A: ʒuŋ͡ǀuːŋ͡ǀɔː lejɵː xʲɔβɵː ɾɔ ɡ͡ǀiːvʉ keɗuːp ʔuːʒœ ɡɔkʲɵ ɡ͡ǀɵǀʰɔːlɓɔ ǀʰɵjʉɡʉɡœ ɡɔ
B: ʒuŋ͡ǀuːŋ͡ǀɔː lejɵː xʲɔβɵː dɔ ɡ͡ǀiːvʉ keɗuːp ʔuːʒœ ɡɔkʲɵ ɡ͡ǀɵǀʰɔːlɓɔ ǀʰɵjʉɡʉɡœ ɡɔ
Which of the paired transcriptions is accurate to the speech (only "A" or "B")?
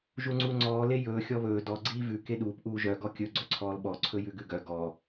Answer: B